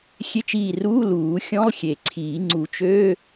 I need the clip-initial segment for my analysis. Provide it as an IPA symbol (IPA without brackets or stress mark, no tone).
xʲ